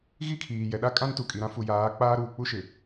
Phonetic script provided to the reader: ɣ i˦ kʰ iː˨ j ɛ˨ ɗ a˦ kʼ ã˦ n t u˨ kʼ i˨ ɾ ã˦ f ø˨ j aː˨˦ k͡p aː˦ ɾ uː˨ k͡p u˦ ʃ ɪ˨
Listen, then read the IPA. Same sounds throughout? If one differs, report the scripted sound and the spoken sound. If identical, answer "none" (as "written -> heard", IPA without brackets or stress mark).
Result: ø˨ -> u˨